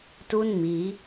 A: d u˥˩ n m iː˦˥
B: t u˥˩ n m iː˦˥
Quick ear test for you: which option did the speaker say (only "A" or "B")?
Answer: B